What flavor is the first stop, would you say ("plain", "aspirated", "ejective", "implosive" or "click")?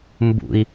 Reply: plain